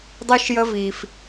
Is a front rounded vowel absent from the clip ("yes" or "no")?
no